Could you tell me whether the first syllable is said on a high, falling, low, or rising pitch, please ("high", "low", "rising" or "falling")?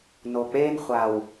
low